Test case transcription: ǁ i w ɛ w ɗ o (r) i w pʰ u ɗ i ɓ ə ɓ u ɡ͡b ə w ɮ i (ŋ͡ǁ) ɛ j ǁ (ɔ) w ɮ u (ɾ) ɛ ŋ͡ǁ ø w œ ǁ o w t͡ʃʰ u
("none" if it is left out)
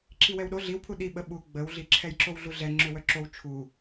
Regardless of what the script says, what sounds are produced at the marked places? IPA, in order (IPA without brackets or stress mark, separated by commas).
ɮ, ǁʰ, o, ɮ